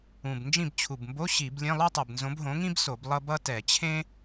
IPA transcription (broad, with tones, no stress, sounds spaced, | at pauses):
ũ˨˩ b n d͡ʒ ĩ˦˨ b t͡ɕʰ u˨˩ b m b o˧˥˧ ɕ i˧˩˧ b lʲ ẽ˧˥˧ lˠ o˥ tˤ ɯ˨˩ b n z õ˨˥ b ɦ õ˨˥ ŋ ĩ˥ b s o˧˩˧ b lˠ ʌ˥ b ʌ˥ t ɛ˧˩˧ t͡ɕʰ ẽ˥